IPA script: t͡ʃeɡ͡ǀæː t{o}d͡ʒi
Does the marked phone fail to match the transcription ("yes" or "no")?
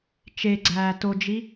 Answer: no